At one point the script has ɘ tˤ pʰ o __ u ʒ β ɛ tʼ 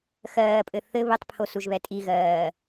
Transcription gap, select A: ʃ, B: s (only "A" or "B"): B